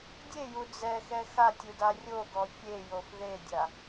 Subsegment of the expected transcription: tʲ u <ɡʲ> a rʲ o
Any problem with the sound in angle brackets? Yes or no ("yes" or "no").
yes